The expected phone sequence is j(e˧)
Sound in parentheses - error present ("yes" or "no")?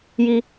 yes